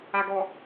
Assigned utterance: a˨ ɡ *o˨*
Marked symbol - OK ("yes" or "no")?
no